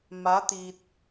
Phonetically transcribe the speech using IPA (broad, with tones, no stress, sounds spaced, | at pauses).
m a˧˥ t̪ iː˧ t̚